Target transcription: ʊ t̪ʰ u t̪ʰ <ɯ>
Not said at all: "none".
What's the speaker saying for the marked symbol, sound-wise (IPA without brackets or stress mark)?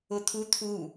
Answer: u